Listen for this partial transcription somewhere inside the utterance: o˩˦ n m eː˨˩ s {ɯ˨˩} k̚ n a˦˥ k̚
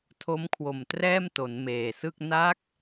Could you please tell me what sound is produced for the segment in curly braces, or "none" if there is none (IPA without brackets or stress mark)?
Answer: ɯ˥˩